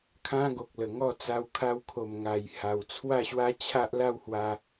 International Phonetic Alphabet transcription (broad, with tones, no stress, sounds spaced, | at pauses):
kʰ ã˦ ɡ o˨ k̚ l ə˨˩ ŋ ɔ˥˧ t͡s a˧ w kʰ a˧ w kʰ o˨˩ m ŋ a˨˩ j h a˨˩ w t͡sʰ w a˥˧ ɕ w a˦ t͡ɕʰ a˦ ʔ l a˥˧ w h w a˧